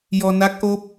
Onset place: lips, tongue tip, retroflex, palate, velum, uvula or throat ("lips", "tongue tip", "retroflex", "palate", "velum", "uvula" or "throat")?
palate